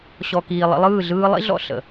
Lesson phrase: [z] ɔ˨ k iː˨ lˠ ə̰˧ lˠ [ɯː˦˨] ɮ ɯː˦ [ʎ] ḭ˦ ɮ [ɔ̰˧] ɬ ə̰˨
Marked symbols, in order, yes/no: no, yes, no, yes

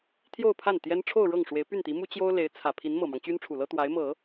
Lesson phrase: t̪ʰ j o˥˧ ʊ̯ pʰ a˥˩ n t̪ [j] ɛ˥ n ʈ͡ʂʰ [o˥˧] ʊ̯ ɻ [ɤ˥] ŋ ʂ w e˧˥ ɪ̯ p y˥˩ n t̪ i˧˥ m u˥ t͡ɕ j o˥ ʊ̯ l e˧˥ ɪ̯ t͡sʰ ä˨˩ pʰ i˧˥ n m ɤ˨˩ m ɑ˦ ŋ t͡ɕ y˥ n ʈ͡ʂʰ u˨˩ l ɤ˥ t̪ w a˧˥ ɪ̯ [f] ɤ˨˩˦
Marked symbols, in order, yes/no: yes, yes, no, no

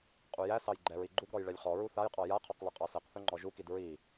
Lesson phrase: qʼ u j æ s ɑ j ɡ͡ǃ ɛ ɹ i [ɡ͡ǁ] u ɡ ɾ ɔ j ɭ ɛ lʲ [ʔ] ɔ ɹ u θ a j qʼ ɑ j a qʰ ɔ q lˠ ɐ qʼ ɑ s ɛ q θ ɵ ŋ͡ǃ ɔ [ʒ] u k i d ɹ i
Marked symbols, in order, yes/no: no, no, yes

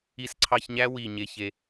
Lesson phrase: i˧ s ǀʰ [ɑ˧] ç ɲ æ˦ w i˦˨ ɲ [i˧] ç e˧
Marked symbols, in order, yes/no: yes, no

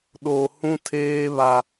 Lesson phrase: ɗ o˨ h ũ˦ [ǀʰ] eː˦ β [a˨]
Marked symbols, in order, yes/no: no, no

